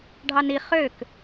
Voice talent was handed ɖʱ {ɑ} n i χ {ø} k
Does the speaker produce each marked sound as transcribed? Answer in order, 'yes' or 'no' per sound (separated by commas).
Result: yes, yes